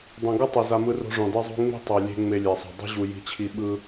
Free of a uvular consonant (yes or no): yes